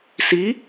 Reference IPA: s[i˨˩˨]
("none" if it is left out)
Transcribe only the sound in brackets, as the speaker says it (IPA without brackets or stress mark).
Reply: i˧˥